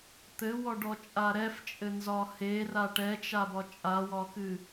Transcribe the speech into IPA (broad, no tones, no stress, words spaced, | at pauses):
t̪ɘwɔɖɔt͡ʃʼa ɾɛft͡ʃʼɘnzɒ hera ʈɛt͡ʃabɒ t͡ʃʼawɒkɨ